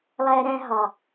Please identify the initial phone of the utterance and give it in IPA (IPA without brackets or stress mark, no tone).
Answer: lˠ